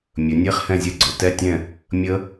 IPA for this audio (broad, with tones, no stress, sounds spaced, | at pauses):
mʲ ɵ˩˧ nʲ e˧˥˧ χ h ɛ̃˦˨ zʲ ɛ˦˨ ɡ͡ǀ ɵ˩˧ t ɛ˧˥˧ tʲ ɛ̃˦˨ | mʲ ə˦˥